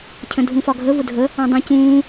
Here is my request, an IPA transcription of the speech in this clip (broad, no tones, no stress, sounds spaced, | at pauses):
cʰ ə̃ dʱ ũ f ɒ ɡʱ ə v ʊ dʱ ə | ɑ̃ dˤ ĩ c ũː